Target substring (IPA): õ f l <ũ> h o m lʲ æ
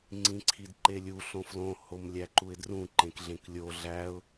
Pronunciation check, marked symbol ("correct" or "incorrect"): incorrect